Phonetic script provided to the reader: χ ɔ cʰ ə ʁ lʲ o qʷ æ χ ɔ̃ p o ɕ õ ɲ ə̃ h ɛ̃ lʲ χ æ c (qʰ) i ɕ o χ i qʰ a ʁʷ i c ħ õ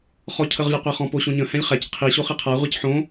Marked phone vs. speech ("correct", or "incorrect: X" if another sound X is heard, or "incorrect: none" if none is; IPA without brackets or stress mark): correct